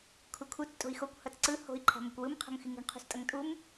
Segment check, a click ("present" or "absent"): present